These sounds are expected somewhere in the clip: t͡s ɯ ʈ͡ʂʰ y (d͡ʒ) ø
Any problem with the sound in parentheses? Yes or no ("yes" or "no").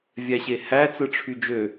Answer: no